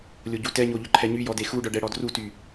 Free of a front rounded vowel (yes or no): no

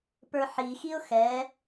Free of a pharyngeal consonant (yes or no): no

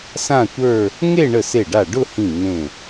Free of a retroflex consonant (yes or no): no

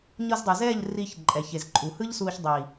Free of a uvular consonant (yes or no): yes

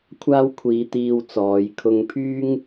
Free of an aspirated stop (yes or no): no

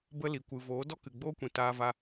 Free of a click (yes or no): yes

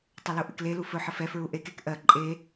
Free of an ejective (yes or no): no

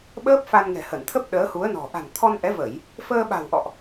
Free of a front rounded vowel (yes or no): yes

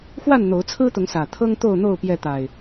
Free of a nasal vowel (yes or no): yes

